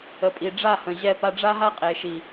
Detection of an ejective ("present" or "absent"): present